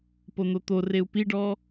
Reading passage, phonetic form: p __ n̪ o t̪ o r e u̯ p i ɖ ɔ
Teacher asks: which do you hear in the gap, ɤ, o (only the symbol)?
o